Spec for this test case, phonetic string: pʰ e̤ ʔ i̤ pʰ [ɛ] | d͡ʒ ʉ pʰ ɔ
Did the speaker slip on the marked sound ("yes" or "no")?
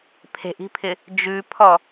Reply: yes